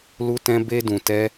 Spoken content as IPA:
l u˧ t ɛ̃˧ b e˧ d ũ˨ t ɛ˧

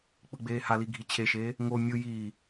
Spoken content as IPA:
k͡p ɯ ɡ͡b eː h a l i ɡʱ i t͡ɕʰ e ʃ eː | ŋ o mʲ ɯ j iː

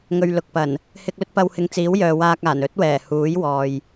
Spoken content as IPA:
ŋ ɵ˨ ɥ l ʊ˨ k̚ p ɐ˨˩ n | h ɪ˧ k̚ l ɵ˥ t̚ p ɐ˧ w h ɪ˧ ŋ t͡s iː˨˥ w j œː˨ w aː˧ k̚ aː˨˩ n ɵ˥ t̚ w ɛː˨˩ h uː˨˥ j w ɔː˨ j

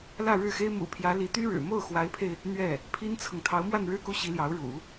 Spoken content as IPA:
l ä˥˧ ɻ ɻ̩˥˩ x e˥ ɪ̯ m ṵ˨˩ pʰ j ä˧˥ l i˧˥ t̪ y˥ ɻ ɻ̩˨˩ m o˥˩ ʊ̯ x w a˧˥ ɪ̯ pʰ e˧ ɪ̯ | n̪ ɥ ɛ˥˩ | pʰ i˥ n t͡sʰ ɤ˨ ŋ t̪ʰ ɑ˧˥ ʊ̯ m w a˥˧ n ɻ ɻ̩˥˧ k u˥˩ ɕ i˧˥ l j ɑ˧˥ ʊ̯ ɻ ṵ˨˩˦

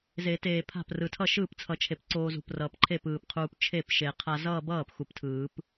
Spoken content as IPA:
z e˨˩˦ t eː˨˩ pʰ a̤˥˩ p r ɯ˨˩ tʰ ʌ˥˩ ʃ ɯː˥˩ p t͡sʰ ʌ˨˩˦ t͡ʃʰ e˨˩ p ǀ oː˧ z ṳ˨˩ p r ʌː˨˩ p ǃʰ e˥˩ p ɯː˨˩ p qʰ uː˧ p t͡ʃʰ e˥˩ p ʃ e˨˩˦ qʰ a˧ z ʌː˥˧ b ʌː˥˩ p x u˨˩ p tʰ ɯː˨˩˦ p

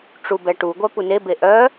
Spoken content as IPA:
ʈ͡ʂ u b ɛ ʈ u ɡʷ œ p u n e b e ʔ œ

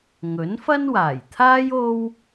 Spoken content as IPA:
ŋ ɵ˨˥ n f ɐ˥ n w aː˨˩ j t̪ʰ aː˥ j o˥ w

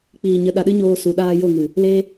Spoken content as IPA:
k͡p iː˨ ɲ ə˨˦ ɗ a˨ ɗ ɨ˦ ɲ oː˧ s u˨ ɗ aː˧ j o˦˨ ŋ ɨ˨ | l e˧

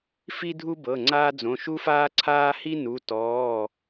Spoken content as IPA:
f i˥ dʱ u˥ b ɤ˩˧˩ ŋ͡ǀ aː˥ d͡z õ˩˧˩ ʃ u˥ f aː˥ ǀʰ aː˥ h i˥ n u˩˧˩ t ɔː˩˧˩

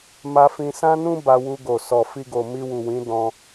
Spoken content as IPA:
m a˧ f ĩ˧ s ã˦ n ũ˦ b a˧ w u˧ ɡ o˨ s ɔ˨ f i˧ ɡ o˨ m i˧ w u˨ w ĩ˨˦ d ɔ̃˧

